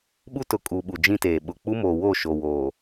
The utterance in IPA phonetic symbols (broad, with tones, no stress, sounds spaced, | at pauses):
ɓ u˦ t ʊ˨ kʼ u˨ ɓ u˨ d͡ʒ ĩ˦ t eː˨ ɓ ʊ˨ k͡p u˦ m o˨ w o˦˨ ʃ o˨ w oː˨